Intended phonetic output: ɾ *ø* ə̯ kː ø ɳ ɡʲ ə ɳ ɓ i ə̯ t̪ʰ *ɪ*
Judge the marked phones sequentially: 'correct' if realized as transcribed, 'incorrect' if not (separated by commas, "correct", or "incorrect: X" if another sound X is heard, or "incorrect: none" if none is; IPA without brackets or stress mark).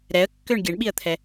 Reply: incorrect: ɛ, incorrect: ɛ